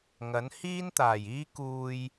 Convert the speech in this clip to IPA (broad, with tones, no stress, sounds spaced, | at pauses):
ŋ ɐ˨˥ n h iː˥ n t̪ aː˨˩ j iː˥ k uː˧ j